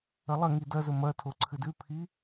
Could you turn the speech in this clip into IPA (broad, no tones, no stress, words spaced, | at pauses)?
ɐlˠɐŋi dɐ zɵmɐ tʰoǀʰɨdʉ pʰi